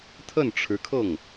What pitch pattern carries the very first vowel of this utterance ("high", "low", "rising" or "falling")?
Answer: falling